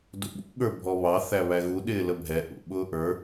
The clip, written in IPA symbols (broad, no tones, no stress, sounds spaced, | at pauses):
d ṵ ɓ ṵ ɠ ə˞ bʱ ɔ β ɑ θ æ β æ ɣ u ɗ ɪː l ə bʱ ɛ ʔ ṵ ɓ ʊː ʔ ə˞